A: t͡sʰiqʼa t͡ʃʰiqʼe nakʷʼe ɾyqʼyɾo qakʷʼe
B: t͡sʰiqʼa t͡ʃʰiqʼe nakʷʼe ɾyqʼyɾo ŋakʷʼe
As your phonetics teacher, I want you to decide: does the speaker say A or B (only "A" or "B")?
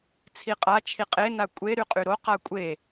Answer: A